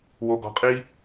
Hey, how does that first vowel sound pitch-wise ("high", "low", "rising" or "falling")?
low